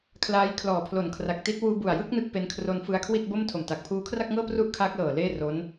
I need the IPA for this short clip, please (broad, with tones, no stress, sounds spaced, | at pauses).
kʰ l aː˦˥ j kʰ l ɔː˨˩ pʰ l o˨˩ n kʰ r a˨˩ k̚ t i˦˥ t̚ w uː˧ b u˨˩ a̯ j ɯ˦˥ k̚ n ɯ˥˩ k̚ p e˧ n kʰ r o˧ n f ɯ˧ a̯ kʰ w i˥˩ t̚ b o˥˩ m tʰ o˨˩ m t a˨˩ k̚ pʰ uː˦˥ kʰ r a˥˩ k̚ ŋ ɤː˥˩ p r u˦˥ ʔ kʰ aː˦˥ k̚ l ɤː˨˩ l eː˥˩ r o˦˥ n